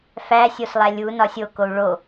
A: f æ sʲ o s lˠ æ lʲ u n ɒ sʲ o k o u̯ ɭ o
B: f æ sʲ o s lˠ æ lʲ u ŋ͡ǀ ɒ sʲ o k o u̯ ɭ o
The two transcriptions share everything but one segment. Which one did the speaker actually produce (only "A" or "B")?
A